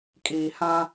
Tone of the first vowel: low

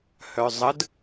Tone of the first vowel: low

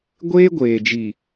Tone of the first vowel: high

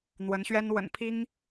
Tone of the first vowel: rising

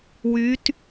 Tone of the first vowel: rising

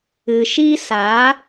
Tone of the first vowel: low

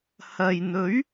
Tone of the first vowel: low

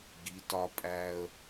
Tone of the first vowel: rising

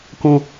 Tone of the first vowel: low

